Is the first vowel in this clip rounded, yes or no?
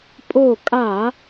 yes